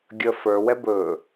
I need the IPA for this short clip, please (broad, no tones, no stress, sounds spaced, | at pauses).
ɡʲ ə f ə˞ w ɛ b ɵ